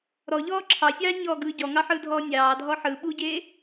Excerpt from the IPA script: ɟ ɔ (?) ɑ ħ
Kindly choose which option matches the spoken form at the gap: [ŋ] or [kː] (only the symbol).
ŋ